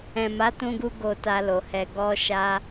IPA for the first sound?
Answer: ɛ̃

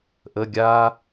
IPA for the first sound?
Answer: ʔ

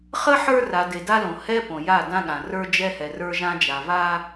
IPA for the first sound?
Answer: χ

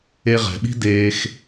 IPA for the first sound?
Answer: e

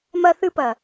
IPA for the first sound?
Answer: m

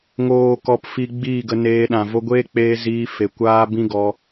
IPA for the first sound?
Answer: ŋ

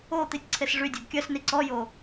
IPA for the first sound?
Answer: o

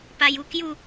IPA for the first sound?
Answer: p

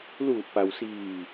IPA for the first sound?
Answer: l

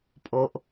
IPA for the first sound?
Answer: pʼ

